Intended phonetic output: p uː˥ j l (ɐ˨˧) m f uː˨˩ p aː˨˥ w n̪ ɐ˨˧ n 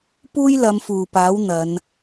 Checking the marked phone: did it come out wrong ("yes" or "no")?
no